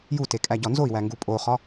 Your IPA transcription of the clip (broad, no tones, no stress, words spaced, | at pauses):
jute kʼæɟɒnzoi̯wæ ŋɡupʼoχɒ